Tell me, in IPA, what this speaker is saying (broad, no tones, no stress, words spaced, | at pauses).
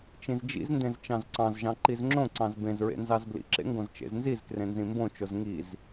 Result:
t͡ʃĩzd͡ʒḭzndẽz t͡ʃɑ̃zǀɑ̃zʒɑ̃ ǃizŋ͡ǁõǀɑ̃z bẽzɹḛ nzɑzblḭǁḛ ŋɡõzt͡ʃḛznzizkrẽ nzĩmbõt͡ʃoz ŋiz